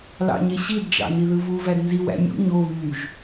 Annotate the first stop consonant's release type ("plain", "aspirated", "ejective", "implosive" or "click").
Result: plain